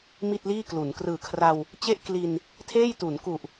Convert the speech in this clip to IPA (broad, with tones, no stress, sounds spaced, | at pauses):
m i˥˩ t̚ l iː˥˩ k l u˩˦ n k r ɯː˨˩ kʰ r a˧ w | t͡ɕ e˥˩ ʔ k l i˧ n | tʰ eː˥˩ j t u˩˦ n k u˨˩ ʔ